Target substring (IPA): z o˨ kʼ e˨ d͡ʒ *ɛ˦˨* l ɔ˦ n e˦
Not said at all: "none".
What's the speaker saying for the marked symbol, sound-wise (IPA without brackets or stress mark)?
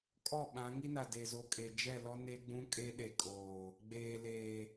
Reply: ɛ˦˨